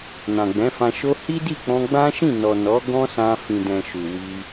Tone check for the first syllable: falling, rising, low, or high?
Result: low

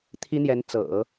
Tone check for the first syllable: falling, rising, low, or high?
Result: high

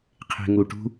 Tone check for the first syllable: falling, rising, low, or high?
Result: low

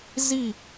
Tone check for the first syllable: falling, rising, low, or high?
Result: falling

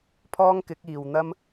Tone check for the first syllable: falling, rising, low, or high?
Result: high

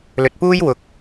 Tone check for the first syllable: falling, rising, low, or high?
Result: low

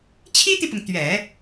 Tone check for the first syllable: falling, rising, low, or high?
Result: high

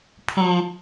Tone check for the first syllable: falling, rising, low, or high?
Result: low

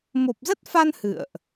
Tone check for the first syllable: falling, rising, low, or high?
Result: low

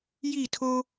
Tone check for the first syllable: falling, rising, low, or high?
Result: falling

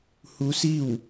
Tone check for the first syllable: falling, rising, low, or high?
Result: rising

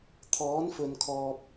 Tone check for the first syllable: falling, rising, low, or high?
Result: rising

